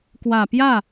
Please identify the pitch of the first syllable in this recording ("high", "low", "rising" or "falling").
low